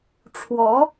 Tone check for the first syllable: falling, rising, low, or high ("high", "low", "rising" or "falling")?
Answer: rising